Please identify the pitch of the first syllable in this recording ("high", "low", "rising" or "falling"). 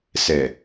low